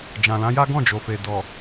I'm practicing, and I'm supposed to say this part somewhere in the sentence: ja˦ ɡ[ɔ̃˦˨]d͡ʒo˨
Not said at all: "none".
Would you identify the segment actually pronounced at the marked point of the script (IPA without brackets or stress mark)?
ɔ̃˦˨